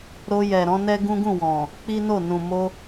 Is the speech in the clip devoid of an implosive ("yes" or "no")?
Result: yes